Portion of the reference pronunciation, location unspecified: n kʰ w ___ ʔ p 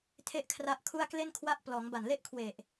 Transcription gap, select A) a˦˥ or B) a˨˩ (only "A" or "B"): A